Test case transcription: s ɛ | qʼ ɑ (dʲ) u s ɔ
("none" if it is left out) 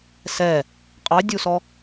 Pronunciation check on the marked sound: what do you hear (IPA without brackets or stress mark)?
dʲ